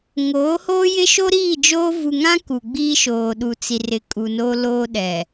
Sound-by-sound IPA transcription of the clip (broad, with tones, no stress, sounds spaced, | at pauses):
ŋ oː˨˦ h oː˦ j ɪ˦ ʃ o˦ ɾ iː˦˨ d͡ʒ oː˦ v u˨ ŋ ã˦ k u˨ ɡ͡b iː˦ ʃ oː˨ ɗ u˨ t͡s i˨ r ɪ˨ kʼ u˨ n o˦ l oː˦ ɗ ɛ˨